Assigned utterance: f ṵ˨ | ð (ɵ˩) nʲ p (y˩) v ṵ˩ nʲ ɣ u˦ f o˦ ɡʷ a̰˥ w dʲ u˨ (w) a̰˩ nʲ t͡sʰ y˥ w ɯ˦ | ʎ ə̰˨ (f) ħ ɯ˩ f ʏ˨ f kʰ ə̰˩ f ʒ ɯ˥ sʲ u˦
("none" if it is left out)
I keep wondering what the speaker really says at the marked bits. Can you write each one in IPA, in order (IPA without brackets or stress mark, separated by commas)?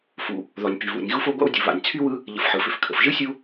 ɔ˩, y˩, β, f